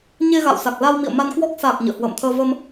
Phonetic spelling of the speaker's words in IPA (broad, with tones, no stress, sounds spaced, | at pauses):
ɲ e˧ ɣ a̰˧˨ w s a˨˩ k̚ l a˧ w m ḭ˧˨ ə̯ m a˧ n k w ɔ˦˥ k̚ s a˨˩ k̚ ɲ ə̰ː˧˨ h w ə̰ː˧˨ m t̪ʰ əː˧ v ə˧ m